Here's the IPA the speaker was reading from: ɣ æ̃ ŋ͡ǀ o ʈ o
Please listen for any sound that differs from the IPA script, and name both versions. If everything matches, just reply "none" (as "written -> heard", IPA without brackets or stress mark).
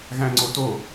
ʈ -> t